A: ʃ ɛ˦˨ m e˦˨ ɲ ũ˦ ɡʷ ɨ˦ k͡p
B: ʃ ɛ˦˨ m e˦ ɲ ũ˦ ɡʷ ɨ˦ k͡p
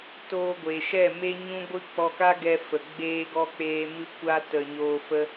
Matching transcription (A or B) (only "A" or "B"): B